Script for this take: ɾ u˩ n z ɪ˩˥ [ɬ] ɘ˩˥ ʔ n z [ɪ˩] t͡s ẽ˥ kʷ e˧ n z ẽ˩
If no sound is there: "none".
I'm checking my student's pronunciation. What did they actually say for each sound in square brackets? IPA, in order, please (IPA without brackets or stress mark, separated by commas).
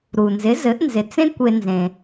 z, ɪ˩